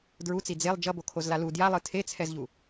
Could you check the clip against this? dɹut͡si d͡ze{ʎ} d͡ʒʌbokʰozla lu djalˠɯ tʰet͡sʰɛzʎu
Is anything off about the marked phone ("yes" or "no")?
yes